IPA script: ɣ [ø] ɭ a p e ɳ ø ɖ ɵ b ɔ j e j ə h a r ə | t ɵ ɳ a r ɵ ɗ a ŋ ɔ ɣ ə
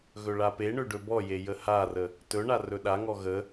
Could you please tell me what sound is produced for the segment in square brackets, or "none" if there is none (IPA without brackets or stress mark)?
ɵ